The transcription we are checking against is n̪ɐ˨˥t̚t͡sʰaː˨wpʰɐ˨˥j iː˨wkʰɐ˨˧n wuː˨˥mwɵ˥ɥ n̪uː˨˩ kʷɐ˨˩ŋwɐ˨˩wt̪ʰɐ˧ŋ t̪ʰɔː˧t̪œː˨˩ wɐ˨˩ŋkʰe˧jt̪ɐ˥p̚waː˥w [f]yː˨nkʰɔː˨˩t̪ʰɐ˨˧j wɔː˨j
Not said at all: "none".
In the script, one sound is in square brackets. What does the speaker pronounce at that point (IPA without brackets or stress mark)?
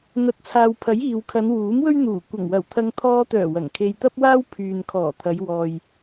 pʰ